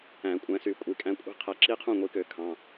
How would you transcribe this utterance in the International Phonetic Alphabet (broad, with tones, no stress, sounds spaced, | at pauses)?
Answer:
æ̃˧˩˧ kʷʼ æ̃˨˦ s y˧˩˧ kʷʼ i˧˩˧ kʼ æ̃˦ kʷʼ i̤˦ qʰ æ˨˦ ǁ i˦ qʰ ũ˥˩ ŋʷ i˨˦ k ø˧˩˧ kʰ ɑ̃˩˧˩